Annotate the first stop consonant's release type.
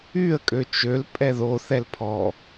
ejective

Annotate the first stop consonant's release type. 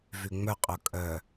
ejective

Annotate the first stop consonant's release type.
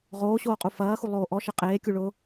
ejective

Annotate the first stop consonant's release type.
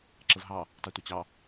click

